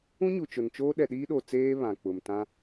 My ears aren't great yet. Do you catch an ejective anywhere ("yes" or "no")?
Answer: no